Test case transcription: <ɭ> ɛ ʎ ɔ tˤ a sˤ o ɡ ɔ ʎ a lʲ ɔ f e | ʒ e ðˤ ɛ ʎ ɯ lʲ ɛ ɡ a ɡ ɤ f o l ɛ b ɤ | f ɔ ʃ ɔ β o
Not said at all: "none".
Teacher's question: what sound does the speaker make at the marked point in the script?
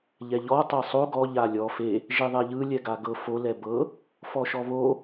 ʎ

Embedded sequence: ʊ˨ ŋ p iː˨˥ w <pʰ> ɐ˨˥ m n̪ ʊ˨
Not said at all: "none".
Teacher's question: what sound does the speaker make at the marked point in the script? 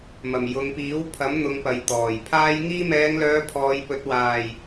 pʰ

